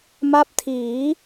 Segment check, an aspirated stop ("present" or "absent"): present